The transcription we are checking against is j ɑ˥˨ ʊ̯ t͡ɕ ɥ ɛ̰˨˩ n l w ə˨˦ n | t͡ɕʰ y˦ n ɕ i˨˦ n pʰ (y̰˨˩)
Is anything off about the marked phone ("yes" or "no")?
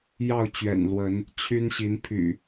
no